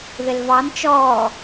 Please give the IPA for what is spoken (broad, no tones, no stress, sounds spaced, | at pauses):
ð ɪ l v ɑ n t͡ʃ ɔː